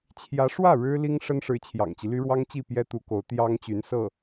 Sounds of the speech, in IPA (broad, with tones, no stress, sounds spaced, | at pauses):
t͡ɕʰ j ä˧˥ ʂ w ä˥˩ ɻ ɻ̩˥ l i˥ ŋ ʂ ə˥ n ʂ ɻ̩˧˥ t͡ɕʰ j ɑ̰˨˩ ŋ t͡ɕ i˦ l y˥ ɻ w ɑ˥ ŋ t͡ɕ i˥˩ p j ɛ˥ t̪ u˧˥ k o˧˥ ʊ̯ t̪ j ɑ˥ ŋ t͡ɕ y˧˥ n s ɤ˥˩